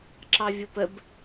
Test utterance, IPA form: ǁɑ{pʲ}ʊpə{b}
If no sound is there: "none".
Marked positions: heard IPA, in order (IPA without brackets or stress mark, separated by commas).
vʲ, b